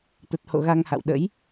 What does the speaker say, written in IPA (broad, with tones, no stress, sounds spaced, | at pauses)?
t̪ ə˨˩ t̚ h o̰˧˨ ɣ a˧ ŋ h a̰˧˨ w ɗ ə̰˧˥ j